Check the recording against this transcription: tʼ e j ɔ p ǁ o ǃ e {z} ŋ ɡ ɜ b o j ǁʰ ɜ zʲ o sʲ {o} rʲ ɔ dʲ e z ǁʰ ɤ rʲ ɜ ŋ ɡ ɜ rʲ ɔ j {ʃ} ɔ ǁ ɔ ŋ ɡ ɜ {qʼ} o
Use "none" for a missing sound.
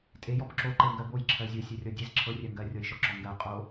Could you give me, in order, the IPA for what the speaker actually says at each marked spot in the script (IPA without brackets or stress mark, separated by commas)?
none, o, ʃ, qʼ